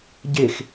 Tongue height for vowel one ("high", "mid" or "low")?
mid